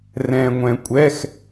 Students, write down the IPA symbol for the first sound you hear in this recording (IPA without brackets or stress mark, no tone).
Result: r